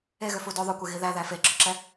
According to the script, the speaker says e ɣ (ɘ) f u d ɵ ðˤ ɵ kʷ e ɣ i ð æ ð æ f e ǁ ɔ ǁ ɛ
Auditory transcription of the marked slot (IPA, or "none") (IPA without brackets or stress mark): ø